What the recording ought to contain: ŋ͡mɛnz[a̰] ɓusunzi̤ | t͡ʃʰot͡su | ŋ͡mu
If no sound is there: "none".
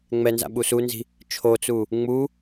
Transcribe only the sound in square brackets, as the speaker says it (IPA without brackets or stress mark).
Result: a̰